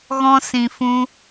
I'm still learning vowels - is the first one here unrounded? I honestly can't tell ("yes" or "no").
no